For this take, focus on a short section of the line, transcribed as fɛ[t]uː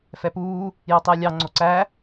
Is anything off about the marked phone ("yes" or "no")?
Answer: yes